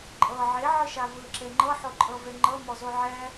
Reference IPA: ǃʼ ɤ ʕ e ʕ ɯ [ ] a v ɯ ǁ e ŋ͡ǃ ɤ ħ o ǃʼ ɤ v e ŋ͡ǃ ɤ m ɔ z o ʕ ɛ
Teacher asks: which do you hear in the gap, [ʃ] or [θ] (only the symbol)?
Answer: ʃ